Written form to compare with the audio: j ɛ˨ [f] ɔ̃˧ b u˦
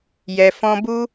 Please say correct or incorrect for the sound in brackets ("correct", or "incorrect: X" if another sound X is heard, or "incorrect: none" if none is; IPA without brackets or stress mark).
correct